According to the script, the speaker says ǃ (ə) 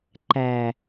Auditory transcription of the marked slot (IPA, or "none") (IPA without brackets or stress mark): æ